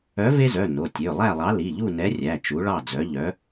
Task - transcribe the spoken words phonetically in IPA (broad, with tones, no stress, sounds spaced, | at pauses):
œ˨˥ v e˦ z œ˩˧˩ n o˩˧˩ tʲ ø˩˧˩ lˠ æ˥˨ lˠ ɑ˨˥ l i˩˧˩ ʎ u˥˨ n ɛ˨˥ rʲ æ˩˧˩ t͡ʃ u˨˥ ɭ ɑ˥˨ d͡z œ˨˥ ʎ œ˨˥